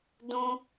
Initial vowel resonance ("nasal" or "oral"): nasal